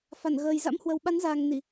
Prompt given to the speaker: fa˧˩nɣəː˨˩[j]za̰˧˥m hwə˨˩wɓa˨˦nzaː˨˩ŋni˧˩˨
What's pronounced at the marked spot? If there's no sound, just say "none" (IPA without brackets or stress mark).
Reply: j